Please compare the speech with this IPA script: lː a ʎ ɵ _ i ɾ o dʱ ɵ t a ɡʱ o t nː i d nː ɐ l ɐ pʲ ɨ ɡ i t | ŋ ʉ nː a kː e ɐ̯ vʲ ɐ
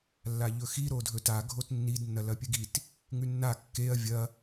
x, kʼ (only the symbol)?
x